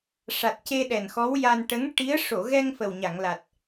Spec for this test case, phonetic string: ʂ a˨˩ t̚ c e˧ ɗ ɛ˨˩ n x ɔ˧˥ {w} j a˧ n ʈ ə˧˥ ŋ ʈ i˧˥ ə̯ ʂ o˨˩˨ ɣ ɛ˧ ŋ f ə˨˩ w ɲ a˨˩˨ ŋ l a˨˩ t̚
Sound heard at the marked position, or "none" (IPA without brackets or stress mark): w